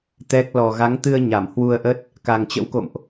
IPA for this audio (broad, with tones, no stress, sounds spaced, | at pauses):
t̪ ɛ˦˥ k̚ l ɔ˨˩ ɣ a˨˦ ŋ t̪ ɨ˧ ə̯ ɲ a˧˩ m h w u˧ ə̯ ʔ ə˦˥ t̚ | k a˨˩ ŋ t͡ɕ ə̰˧˥ w k o̰˧˨ m ʔ